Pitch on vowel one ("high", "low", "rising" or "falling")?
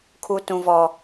high